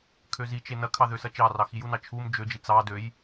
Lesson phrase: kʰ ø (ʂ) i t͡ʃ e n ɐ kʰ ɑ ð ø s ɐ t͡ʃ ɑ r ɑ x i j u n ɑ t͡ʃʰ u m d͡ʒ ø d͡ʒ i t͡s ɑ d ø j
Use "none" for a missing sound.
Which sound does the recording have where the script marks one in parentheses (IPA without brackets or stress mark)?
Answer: z